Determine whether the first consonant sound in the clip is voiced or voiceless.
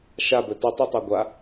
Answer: voiceless